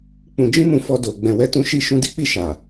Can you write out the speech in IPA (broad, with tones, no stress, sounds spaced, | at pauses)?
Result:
k͡p ũ˨ d͡ʒ ĩ˧ m ũ˨ f ɔ˧ d o˨ ɡ͡b ɛ̃˨ w ɛ˧ t ũ˧ ʃ i˧ ʃ ũ˧ d i˦ k͡p i˦˨ ʃ a˨